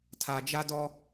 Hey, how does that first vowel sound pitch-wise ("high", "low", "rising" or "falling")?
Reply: low